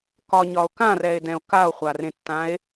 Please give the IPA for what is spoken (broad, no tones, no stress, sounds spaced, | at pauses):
k ɒ ɲ ɒ o̯ k ã r ɛ e̯ d ɛ̃ o̯ k a o̯ χʷ a r ẽ tː ã e̯